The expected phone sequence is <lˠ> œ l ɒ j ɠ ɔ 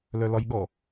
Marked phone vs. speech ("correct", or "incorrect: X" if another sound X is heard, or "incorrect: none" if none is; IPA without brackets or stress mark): incorrect: l